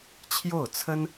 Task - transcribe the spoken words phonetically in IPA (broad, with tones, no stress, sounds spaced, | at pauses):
t͡ɕʰ j o˥˩ ʊ̯ t͡sʰ ə˥ n